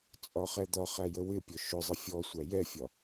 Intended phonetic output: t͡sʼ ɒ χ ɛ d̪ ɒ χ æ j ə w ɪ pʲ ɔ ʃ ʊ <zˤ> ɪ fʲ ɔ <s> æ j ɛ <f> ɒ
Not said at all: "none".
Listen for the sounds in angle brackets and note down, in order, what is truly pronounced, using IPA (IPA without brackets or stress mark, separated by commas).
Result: zˤ, sʷ, fʲ